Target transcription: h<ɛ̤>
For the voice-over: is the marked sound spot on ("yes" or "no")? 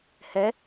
no